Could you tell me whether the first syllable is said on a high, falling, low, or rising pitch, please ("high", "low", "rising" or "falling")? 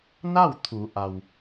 falling